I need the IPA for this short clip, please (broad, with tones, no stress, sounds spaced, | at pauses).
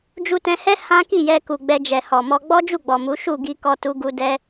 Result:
d͡ʒ u˧ t ɛ̃˧ h ɛ˦ h ã˦ k i˦˨ j ɛ˧ k u˨ ɡ͡b ɛ˧ d͡ʒ ɛ˨ h ɔ˨ m ɔ˧ ɡ͡b ɔ˦ d͡ʒ u˦˨ ɡ͡b ɔ˨ m u˨˦ ʃ u˦˨ ɡ i˧ k ɔ˧ t u˦ ɡ u˦ d ɛ˦